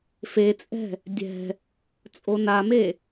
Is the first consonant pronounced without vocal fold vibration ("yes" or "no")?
yes